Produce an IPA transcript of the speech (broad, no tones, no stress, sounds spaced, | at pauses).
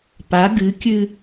p a ɡ ɨ kʲ ɨ